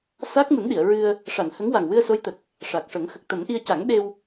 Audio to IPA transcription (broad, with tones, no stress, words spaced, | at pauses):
sa˦˥k̚mu˨˩˦nɗi˨˩˨ə̯ɹɨ˧ə̯ | ʂa˨˩˨n hə˧˥ŋwa˨˩ŋ wɨ˧ə̯so˧˥jt̪ə˨˩k̚ | ʂa˨˩k̚ʂə˨˩˦ŋ xə˨˩k̚t̪ə˨˩˦mʔi˧ə̯ ca˨˩˦ŋɗe˧w